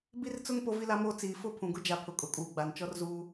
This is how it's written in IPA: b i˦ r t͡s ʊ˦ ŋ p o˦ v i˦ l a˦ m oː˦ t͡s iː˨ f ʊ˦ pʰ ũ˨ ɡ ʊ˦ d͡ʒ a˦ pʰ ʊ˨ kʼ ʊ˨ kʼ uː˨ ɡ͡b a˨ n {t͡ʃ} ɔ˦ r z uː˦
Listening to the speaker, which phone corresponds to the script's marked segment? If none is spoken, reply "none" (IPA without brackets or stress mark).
t͡ʃ